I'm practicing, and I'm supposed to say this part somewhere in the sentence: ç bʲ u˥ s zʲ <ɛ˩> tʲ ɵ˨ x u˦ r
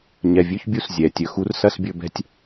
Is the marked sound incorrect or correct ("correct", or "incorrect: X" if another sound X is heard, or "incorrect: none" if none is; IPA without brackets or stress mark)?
correct